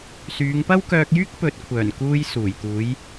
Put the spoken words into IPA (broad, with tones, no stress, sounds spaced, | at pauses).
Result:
s yː˨˧ ŋ p ɐ˥ w k œː˧ k̚ j yː˥ k̚ p ɵ˨˥ t̚ kʷʰ œː˨˩ n k uː˧ j s uː˨˩ j t̪ uː˨˧ j